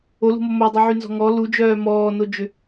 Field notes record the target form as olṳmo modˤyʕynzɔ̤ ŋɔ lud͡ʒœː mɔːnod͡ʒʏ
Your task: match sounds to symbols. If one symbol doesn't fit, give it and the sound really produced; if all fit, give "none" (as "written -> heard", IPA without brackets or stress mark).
none